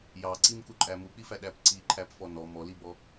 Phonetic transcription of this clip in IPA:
j ɑ ǀ i m k u ǃʼ æ m u k͡p i f æ ɗ æ p ǀ i ǃʰ æ p f ɔ n ɔ m ɔ l i b ɔ

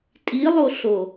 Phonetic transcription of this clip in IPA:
tʼ i lˠ o ɬ o

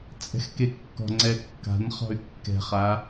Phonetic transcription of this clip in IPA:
t͡sʼ ɛ̤ x k e kː ɔ̤ ŋ͡ǀ ɛ kː a̤ n χ ɔ̤ y̯ kː ɛ̤ χ a

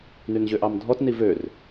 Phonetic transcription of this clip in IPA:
n y n ʑ ø ʔ ɑ m dʱ ɔ t n i v ø r

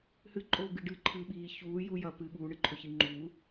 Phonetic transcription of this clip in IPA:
h ɨ ǃʼ oː ɡ ɨ ɖ ɨ ǃʰ ɨ ɓ iː ç uː j u j ɐ p ɨ ɠ uː ɳ ɨ ǃʰ ɵ ç i ŋ͡ǃ u

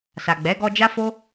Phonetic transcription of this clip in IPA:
s a˨ ɡ͡b ɛ˨˦ ɡ ɔ˧ d͡ʒ a˦ f o˦

